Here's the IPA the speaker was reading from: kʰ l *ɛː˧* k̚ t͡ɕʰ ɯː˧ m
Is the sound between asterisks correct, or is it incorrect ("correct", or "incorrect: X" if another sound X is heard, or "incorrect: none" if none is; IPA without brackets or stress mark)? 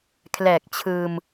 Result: incorrect: ɛː˨˩